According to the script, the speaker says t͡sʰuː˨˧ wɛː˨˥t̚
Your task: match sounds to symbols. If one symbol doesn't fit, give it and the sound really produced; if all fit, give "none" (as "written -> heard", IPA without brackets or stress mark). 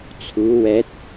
none